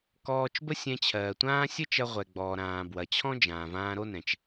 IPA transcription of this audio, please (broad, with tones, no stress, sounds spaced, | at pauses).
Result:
k ɔː˧ t͡ʃ b ə˥ sʲ ɛ̃˧ t͡ɕʰ ɜː˩ tʷ ãː˥ sʲ ə˥ t͡ʃ ɐ˧ ʁʷ ɛ˩ ɡ͡b ɔː˩ ɾ ãː˩ b w ɐ˩ t͡ɕʰ ɔ̃˥ d͡ʒ ãː˩ v ãː˧ ɾ o˥ n ɛ̃˩ t͡ʃ